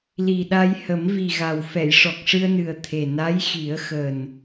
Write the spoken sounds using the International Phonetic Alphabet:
li˨˩ɗa˧j hə˨˩˦mvi˨˩ɣa˨˩w fɛ˨˩˨jʂɔ˨˩k̚ʂɨ˧ə̯nɨ˨˩ə̯ t̪ʰe˨˩na˧˥j xi˨˩˦ə̯xəː˨˩n

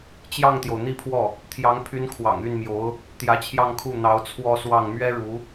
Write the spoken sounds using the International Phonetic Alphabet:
t͡ɕjɑ˥˩ŋt̪jo˩ʊ̯n̪i˥˧pʰwɔ˥˩ | t̪ʰjɑ˧˥ŋpʰy˧˥n kʰwɑ̰˨˩ŋy˥˩nmjo˧˥ʊ̯ | t̪jä˧˥t͡ɕʰjɑ˥˧ŋkʰu˥˩ n̪ɑ˧˥ʊ̯ t͡sʰwɔ˥˧swɑ˥˩ŋ mɥɛ˥ɻu˧˥

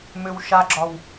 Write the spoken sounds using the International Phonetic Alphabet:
mʏw ʃaɡ͡ǁɒw

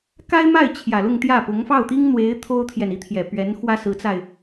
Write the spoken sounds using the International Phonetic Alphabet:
ka˥ɪ̯ma˥˩ɪ̯ t͡ɕʰjä˨˩lʊ˥˧ŋt̪jä˥˩pʊ˧˥ŋ fɑ˥˩ʊ̯t̪i˥ŋn̪we˧˥ɪ̯ t̪ʰo˥ʊ̯t̪ʰjɛ˨n i˥t̪ʰjɛ˨˩ pɥɛ˧˥nxwä˥sɹ̩˧˥t͡sa˧ɪ̯

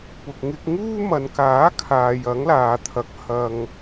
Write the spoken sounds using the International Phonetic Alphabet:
pʊ˨k̚ ŋɪ˧k̚ŋuː˥ mɐ˨nkaː˨˥ kʰaː˨jɐ˨˥ŋlaː˨t̪ʰɐ˨˥k̚ hɐ˨ŋ

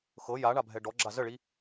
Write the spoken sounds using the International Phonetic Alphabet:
xɤ ja ɳabʱɛɖɔɡ͡ǁa zəɭi

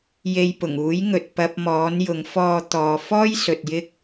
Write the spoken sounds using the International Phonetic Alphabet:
je˨j pʊ˨˩ŋuː˨˥jŋɵ˨t̚ pɐ˧p̚mɔː˨˥njʊ˨˥ŋ fɔː˧ t̪ɔː˨fɔː˥jsɵ˨t̚ jɪ˥k̚

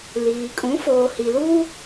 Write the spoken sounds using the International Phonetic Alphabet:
liː˨kʼũ˨˦ foː˨hi˨luː˦

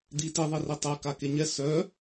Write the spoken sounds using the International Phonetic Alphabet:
d̪i tiðˤeri tˤɛ kakeɲɛ sœ

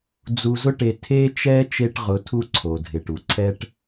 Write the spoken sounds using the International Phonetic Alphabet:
d͡zu˨zʊ˦ʈe˨ tʰe˦t͡ʃɛ˦ t͡ʃe˦ʈʁʊ˨˦tʰu˦ ǀʰo˨dʱɪ˨ʈu˨ ǀʰɛ˦ʈ

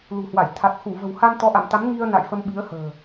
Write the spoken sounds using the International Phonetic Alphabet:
lṳ˨˩hwa˧˩j t̪ʰa˨˩t̚ xu˧˩və̤˨˩wha˧n t̪ɔ˨˦ʔa̰˧˨mt̪a˨˦m ŋi˧ə̯na̰˧˨j fə˧mɓi˨˦ə̯hə̤ː˨˩

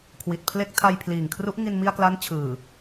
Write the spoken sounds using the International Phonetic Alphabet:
kʰwi˨˩t̚ pʰle˦˥k̚ tʰa˧jpʰliː˨˩ŋkʰru˦˥ʔ ŋi˧nmi˧a̯kla˦˥n t͡ɕʰɯː˨˩

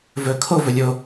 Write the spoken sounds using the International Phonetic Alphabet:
vɵ kʰovɵ lʲo

